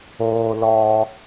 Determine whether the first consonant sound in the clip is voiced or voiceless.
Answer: voiced